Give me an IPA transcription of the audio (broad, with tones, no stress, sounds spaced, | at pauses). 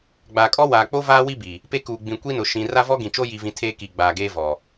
ɡ͡b aː˨ kʼ ɔ˦ w aː˨ k͡p o˦ v aː˦ w i˦ b i˨ | p e˦ k uː˨ ɡ͡b ĩ˨ kʷ i˦ n ʊ˨ ʃ ĩ˨ r a˦ v ɔ˦ ɡ ĩ˨ t͡ʃ o˦ j i˨ v ĩ˨ tʰ eː˦ k i˨ ɡ͡b aː˨ ɡ eː˦ v ɔ˨